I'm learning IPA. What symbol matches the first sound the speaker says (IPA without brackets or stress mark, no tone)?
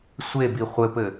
sʷ